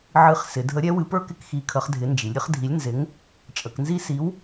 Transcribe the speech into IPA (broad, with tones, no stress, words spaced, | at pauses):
ʕɨ˨˥χsɪ˩˧dʱə˨˥ ɾʲɛ˨˥wɨ˨˥pə˞˥ kɪ˥kxi˨˥kʰə˨˥χ dʱɪ˨˥nd͡ʒi˩˧lʲɾʲə˥χ dʱi˨˥lʲnzɪ˨˥ŋ | t͡ʃʼə˩˧knzi˥ si˨˥w